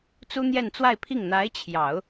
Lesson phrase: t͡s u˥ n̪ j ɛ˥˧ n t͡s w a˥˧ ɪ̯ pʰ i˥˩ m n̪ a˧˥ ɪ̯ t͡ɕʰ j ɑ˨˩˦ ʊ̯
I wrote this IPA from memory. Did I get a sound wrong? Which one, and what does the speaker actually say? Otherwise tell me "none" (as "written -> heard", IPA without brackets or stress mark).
m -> ŋ